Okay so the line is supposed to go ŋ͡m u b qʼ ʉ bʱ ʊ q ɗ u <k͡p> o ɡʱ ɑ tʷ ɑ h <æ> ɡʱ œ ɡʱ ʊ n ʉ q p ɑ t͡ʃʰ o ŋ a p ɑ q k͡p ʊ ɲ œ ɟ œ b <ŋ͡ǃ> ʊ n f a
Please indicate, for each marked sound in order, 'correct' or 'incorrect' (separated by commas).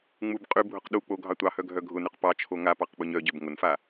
correct, incorrect, incorrect